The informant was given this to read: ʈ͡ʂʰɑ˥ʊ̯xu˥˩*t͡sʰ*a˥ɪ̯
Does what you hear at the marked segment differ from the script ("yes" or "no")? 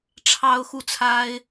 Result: no